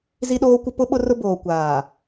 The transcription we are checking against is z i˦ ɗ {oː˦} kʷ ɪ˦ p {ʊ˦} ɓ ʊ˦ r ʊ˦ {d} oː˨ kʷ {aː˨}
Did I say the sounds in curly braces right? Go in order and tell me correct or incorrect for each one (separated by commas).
correct, correct, incorrect, correct